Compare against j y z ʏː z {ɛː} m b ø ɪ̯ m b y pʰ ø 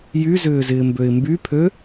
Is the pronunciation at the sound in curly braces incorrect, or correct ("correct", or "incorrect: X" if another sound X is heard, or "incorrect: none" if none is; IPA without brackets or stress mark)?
incorrect: ɪː